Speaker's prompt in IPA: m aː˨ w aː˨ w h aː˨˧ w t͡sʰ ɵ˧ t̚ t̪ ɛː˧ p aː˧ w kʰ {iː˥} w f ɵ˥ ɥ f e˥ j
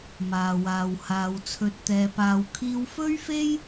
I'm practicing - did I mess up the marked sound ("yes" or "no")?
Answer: yes